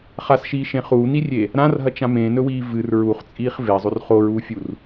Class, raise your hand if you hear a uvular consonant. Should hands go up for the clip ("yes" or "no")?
yes